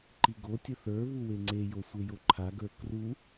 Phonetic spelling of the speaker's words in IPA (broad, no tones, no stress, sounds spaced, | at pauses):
ǃ i ɡ o tʲ ə θ ə˞ β u w e ŋ͡ǀ e j o sʷ e j o ǃʰ a ɡ ə˞ k r u